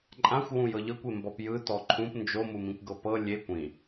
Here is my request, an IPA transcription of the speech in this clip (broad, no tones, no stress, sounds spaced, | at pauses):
ǃʼ ã xʷ w ũ j ɤ ʎ ɤ kʷ e m b ɔ p j ɯ t ɔ ǃʰ ũ p n d͡ʒ o m u m ĩ kʷ ɡ ɤ p ɤ lʲ e kʷ ĩ